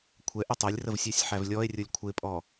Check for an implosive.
absent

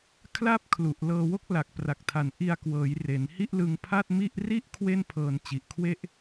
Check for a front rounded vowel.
absent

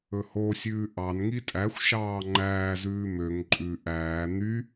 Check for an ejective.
present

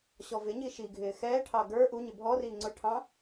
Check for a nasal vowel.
present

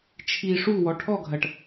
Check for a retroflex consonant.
present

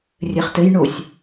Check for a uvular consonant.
present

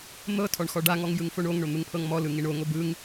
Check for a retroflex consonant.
present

